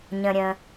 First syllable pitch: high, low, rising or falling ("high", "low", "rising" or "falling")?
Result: low